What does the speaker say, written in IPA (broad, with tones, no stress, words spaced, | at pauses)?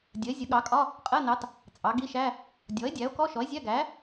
dʲə˩˥e̯zʲə˩˥ ɠɑ˩˥kʼɒ˧˥˧ | qʼɜ˧˥˧nɑ˩˥t | t͡sʼɑ˩˥ɡi˧˥˧ʃæ˧˥˧ | dʲɔ˩˥e̯dʲæ˩˥o̯kɔ˧˥˧ ʃɔ˩˥e̯zʲæ˧˥˧ɡæ˩˥